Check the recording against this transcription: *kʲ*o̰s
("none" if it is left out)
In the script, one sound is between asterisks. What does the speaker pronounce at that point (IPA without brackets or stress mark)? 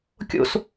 kʲ